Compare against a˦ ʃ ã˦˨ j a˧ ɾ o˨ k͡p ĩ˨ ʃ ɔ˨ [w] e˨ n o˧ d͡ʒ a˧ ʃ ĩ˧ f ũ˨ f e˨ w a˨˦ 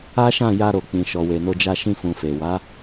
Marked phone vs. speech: correct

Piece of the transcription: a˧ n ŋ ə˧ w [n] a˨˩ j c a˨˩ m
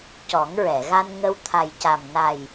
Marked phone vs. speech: incorrect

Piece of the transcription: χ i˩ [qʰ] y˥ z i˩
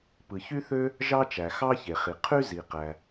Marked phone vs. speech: correct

